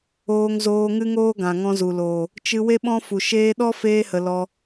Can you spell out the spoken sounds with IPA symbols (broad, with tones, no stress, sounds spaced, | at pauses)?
oː˧ ŋ z oː˧ ŋ ɨ˦ ŋ oː˦ ɡ ã˨ ŋ ɔ̃˧ z u˨ l oː˨ | t͡ʃ ɨ˧ w e˦ ɓ ɔ̃˦ f u˨ ʃ eː˧ ɗ ɔ˦ f eː˧ h ə˨ l ɔ˧